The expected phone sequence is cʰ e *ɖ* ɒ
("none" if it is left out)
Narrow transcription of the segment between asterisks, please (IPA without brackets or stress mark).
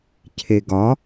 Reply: ɡ